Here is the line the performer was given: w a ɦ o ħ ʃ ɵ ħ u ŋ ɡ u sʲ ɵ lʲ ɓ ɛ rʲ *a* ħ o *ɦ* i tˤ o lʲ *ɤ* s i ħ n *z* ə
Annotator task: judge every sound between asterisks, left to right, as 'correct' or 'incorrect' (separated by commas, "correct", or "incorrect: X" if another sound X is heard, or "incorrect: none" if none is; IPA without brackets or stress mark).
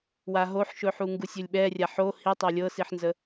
correct, incorrect: h, correct, correct